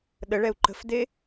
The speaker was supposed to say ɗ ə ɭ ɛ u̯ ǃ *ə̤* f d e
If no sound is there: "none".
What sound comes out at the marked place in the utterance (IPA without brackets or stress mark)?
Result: ə̤